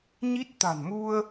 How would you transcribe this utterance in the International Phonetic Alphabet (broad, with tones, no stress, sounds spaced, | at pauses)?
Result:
ɲ i˦˥ t̚ t̪ a̤˨˩ n m u˧ ə̯